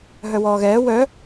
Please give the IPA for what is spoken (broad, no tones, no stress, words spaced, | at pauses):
ɦœwɔːɣɛː wœ